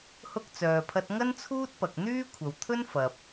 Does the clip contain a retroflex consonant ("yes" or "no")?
no